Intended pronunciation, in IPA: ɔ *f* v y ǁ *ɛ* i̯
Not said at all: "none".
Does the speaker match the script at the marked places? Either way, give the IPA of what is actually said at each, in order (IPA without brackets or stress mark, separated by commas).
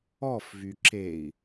f, e